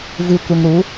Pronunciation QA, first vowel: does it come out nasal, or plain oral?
oral